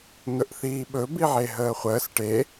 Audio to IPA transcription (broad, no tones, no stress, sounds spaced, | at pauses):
n̪ ɵ ʔ θ iː ɓ ɵ b i ʕ e ɦ əː χʷ əː s ʈ e